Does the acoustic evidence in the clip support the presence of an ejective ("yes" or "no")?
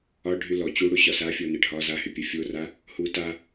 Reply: no